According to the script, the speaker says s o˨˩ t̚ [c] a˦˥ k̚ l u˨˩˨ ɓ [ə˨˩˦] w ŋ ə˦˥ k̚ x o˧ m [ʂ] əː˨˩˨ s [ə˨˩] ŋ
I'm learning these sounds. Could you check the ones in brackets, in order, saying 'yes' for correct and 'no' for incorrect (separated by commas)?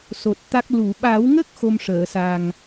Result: no, no, yes, no